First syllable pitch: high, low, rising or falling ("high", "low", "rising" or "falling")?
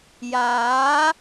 rising